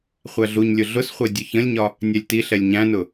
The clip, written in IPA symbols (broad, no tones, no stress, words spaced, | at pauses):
χʷæɮuɲlʲʊ ɮʊsχʷɛ dʲʊçə̃lʲɲɒ | nʲɛlʲtiɬɛlʲ ɲæ̃nʊ